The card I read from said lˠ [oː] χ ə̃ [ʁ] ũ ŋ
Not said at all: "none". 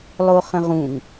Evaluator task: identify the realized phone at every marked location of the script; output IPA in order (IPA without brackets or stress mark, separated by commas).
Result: o, ʁ